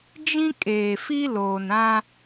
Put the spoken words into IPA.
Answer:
d͡ʒ ĩ˦ kʼ eː˨ f i˦ l oː˨ n ã˦

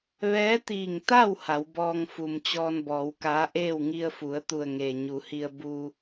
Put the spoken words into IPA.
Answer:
ʋ ɛː˧˥ t̪ iː˧˩ ŋ t̪ a˥˨ w h a˩˧ w b ɔː˧ ŋ f u˩ m t͡ɕ ɔː˧ n b ɔː˩˧ w k aː˧˥ ʔ eː˥˨ w ŋ i˧ ə̯ f u˩˧ ə̯ t̪ u˧˩ ə̯ ŋ eː˩ ɲ u˩˧ h i˧ ə̯ b u˧

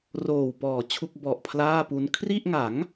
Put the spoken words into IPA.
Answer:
r oː˨˩ w p ɔː˨˩ t͡ɕʰ u˥˩ k̚ b ɔ˨˩ ʔ pʰ l aː˥˩ p u˦˥ n kʰ r i˥˩ ʔ ŋ a˩˦ ŋ

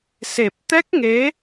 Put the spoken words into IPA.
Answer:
s e˨˩ p̚ t̪ ɛ˦˥ k̚ ŋ e˨˦

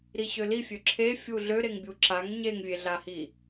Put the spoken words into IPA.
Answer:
ɾ i ɕ ø l i fʲ ø ǁʰ e fʲ u ɮ ø ɾ e ŋ bʲ u ǁ a ŋ ɲ e ŋ vʲ e ɮ a h i

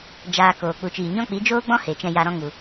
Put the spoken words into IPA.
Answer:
d͡ʒ aː˧ k oː˨ k͡p u˨ t͡ʃ iː˨ ɲ ɔ̃˦ k͡p i˨˦ d͡ʒ oː˦ ɡ͡b ɔ̃˦ h e˨ t͡ʃ ɛ̃˧ j a˧ ɾ ɔ̃˦ ŋ u˨

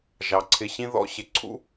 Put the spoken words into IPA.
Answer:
ʒ ɑ˩ ǀʰ ɪ˨ ɕ ĩ˦ ð ɔ̰˦ ɕ ɪ˩ ǀʰ ṵ˥

